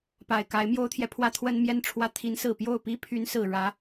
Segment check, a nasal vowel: absent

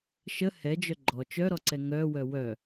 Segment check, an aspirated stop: absent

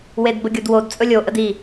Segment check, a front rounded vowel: absent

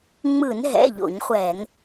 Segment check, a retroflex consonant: absent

